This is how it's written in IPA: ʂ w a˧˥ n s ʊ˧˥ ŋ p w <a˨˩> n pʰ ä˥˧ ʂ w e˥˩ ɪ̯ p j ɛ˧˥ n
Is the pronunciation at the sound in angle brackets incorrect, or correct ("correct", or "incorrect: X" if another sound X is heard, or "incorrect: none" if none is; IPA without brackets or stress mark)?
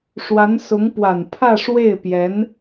correct